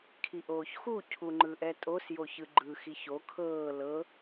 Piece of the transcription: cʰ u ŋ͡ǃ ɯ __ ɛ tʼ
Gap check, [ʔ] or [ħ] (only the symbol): ʔ